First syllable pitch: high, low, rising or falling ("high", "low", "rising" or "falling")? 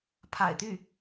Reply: low